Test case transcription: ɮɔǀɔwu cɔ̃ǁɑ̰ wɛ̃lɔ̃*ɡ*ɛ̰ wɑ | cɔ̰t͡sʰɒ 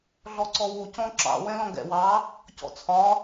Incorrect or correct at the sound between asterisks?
correct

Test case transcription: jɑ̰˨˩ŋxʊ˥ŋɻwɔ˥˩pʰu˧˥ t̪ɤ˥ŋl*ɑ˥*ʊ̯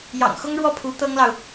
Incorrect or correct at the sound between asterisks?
incorrect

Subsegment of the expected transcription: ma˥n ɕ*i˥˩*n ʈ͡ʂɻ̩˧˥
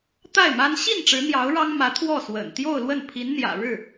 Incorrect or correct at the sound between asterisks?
correct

